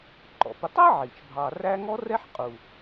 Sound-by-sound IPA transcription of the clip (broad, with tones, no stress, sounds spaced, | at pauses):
ǃ ɔ̰˩ p ʊ˨ tˤ æ˥ ʕ i˩ t͡ʃ bʱ ɑ˨ r æ˦ ŋ ɔ˥ r ɛ˥ ħ qʼ u˩